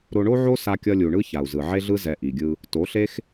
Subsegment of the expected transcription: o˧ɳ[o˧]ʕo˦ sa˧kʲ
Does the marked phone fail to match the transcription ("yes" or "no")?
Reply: yes